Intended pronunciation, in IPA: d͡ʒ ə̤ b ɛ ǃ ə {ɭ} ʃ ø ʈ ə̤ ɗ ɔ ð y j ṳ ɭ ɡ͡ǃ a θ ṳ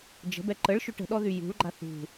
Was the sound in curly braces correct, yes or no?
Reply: yes